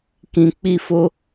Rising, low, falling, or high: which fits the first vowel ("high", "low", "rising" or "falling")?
low